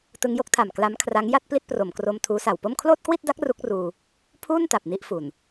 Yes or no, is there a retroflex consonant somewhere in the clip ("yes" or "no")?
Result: no